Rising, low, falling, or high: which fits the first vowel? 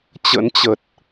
rising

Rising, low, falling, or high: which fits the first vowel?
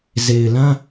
low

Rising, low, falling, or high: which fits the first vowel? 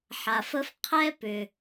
low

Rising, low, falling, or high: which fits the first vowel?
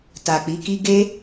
low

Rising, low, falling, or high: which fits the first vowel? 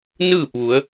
falling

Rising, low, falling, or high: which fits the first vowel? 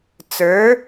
rising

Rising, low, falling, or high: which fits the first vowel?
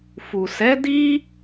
low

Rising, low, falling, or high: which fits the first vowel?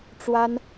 high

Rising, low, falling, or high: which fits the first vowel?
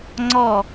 falling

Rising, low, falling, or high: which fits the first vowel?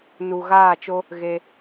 low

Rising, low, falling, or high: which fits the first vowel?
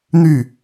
falling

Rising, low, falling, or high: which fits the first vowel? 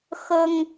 high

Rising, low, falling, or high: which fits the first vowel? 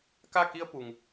falling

